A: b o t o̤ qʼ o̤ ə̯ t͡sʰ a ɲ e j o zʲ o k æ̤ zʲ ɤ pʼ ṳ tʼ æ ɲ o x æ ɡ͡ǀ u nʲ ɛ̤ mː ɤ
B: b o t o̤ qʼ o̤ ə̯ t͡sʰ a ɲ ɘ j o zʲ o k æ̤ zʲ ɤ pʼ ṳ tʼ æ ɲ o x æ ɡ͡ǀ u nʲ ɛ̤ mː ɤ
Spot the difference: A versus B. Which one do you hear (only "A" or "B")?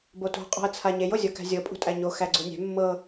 A